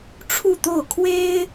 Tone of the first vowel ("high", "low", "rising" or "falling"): falling